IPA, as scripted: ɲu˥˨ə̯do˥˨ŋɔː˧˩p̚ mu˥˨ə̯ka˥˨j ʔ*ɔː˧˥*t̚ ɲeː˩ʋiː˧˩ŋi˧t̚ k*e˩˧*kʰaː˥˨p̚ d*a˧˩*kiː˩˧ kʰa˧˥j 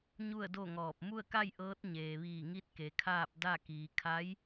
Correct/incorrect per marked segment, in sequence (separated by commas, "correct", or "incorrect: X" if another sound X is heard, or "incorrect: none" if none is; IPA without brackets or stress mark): incorrect: ɤː˧˥, correct, incorrect: a˥˨